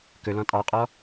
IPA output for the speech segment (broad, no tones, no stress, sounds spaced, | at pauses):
k ɵ l ɔ̃ tʼ ɑ qʼ ɔ